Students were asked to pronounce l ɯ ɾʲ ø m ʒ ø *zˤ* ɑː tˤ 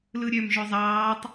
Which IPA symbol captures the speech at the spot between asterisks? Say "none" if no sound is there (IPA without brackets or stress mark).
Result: zˤ